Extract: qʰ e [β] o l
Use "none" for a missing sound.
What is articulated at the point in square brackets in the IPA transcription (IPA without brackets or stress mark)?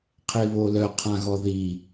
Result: β